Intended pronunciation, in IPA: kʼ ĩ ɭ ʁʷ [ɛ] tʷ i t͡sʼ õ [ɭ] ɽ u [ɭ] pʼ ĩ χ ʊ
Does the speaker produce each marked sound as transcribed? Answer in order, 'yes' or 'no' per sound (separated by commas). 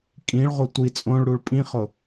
no, yes, yes